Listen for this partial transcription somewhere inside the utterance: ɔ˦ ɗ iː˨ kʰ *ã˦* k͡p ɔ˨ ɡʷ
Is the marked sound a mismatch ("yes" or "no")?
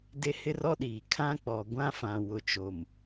no